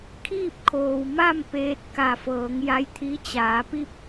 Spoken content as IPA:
kʰ iː˥˨ p̚ kʰ oː˩ w m a˥˨ m p eː˧ t̚ k a˧˩ f ɤː˩˧ ŋ j a˧˥ j t̪ʰ i˧˥ t͡ɕ aː˩˧ p i˥˨ p̚

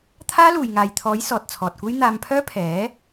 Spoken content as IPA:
t̪ʰ aː˥ l uː˨ j ŋ aː˨ j t̪ʰ ɔː˨˥ j s ɔː˨ t̚ t͡sʰ ɔː˨ t̚ kʷ e˥ j n̪ aː˧ m pʰ œː˥ pʰ ɛː˨˥

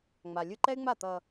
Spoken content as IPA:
ŋ͡m a˨ lʲ ɯ˧ ǃ ɛ˦ y̯ ŋ͡m a˦˨ t̪ ʌː˧

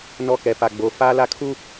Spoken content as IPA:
n ɔ˦ k ɛ˨ p a˨ ɡ͡b o˨˦ f aː˦ l a˦ kʰ u˦

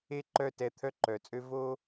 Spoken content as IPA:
e˥ ǃ œ˥˧ t ɛ˧ t̪ʰ œ˥ ǃ œ˩˧ t͡sʼ ø˥ v o˥

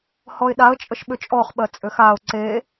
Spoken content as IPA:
h ɔ ɪ̯ ɗ a ə̯ t͡ʃʼ ə ʃ ɓ ʏ t͡ʃʼ ɔ χ ɓ ɜ t͡sʼ ʏ x a ʊ̯ ǀ e

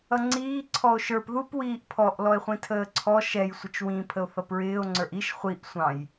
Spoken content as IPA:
ʌ ŋ͡ǀ iː ǀʰ ɔ o̯ ʃ ə˞ p ð u p w iː ʔ pʰ ɔ ʔ l ɔ e̯ χʷ ĩ tʰ əː ǀʰ ɔ ʃ ɛ j sʷ ə t͡ʃ w ĩ pʰ ə o̯ θ ʌ p ɹ ɪː o̯ ŋ͡ǀ ə˞ ʔ i ʃ χʷ i ʔ sʷ ɑ̃ j

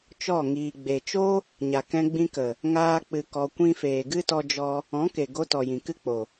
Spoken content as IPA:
t͡ʃ ɔ˦˨ ŋ iː˨ ɡ͡b e˨ t͡ʃ o˦ | ɲ a˨ k ɛ̃˧ ɡ͡b ĩ˧ k ə˨ | ŋ aː˦ k͡p ɨ˧ k ɔ˧ kʷ ĩ˦ f eː˨ ɡ ɨ˦ t ɔ˧ d͡ʒ ɔ˧ | ɔ̃˨˦ k e˨ ɡ o˧ t ɔ˨ j ĩ˨ k ɨ˦ k͡p o˨

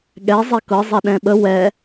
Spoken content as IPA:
ɠ ɛ zˤ ɛ k ɤ zˤ ɛ ɗ ɛ̃ ɓ ə w ɛ

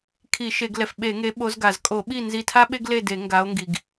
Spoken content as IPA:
kʰ i˧˩˧ ʃ e˧˩˧ ɡ l ɛ˩ f ɓ e˧˩˧ ŋ e˨˦ ɓ o˨˦ z ɡ a˩ z kʼ o˧˩˧ ɓ i˥˨ n z i˧˩ tʰ a˥ ɓ e˥ ɡ l e˥˨ d e˧˩˧ ŋ ɡ a˨˦ o̯ ŋ ɡ i˩ ɡ

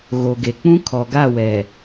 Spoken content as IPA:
ɣ o˨ ɡ e˨ k͡p ũ˦ kʰ ɔ˨ ɡ a˦˨ w ɛ˨

